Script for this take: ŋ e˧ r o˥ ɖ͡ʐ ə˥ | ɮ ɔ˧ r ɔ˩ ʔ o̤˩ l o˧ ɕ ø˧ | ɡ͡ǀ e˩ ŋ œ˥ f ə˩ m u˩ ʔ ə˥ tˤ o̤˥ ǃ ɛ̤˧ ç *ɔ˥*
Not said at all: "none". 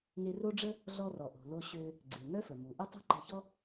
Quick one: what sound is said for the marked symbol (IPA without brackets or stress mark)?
ɔ˥